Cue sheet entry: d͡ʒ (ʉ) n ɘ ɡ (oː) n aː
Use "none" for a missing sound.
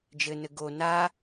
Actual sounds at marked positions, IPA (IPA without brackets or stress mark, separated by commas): ɘ, o